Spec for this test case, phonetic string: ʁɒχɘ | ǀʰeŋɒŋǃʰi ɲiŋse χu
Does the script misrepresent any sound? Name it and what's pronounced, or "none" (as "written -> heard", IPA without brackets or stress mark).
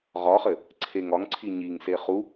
ǃʰ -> ǀʰ